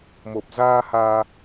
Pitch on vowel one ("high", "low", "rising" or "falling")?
low